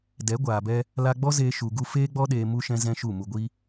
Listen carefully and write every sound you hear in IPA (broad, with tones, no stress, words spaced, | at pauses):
dɛ˨˦ɡʷaː˨bɛ˧ | la˧ɡ͡bɔ˦zeː˧ ʃu˧ɡu˦ feː˦ɡ͡bɔ˦ɗeː˧ mu˧ʃɛ̃˧zɛ̃˧ ʃu˦˨mu˧ɡʷi˦